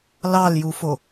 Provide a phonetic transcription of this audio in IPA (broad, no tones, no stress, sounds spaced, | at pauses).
l ɑ l j u f o